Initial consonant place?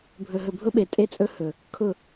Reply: labial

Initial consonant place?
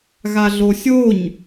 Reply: velar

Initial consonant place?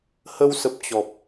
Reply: glottal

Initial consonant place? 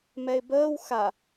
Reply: labial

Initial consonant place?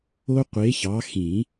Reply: uvular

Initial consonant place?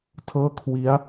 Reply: alveolar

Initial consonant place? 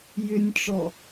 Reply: palatal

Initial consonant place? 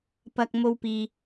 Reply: labial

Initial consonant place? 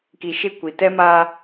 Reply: velar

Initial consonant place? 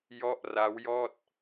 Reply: palatal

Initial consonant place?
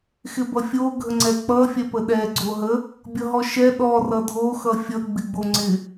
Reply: velar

